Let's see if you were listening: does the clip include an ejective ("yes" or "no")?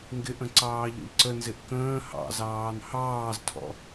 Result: no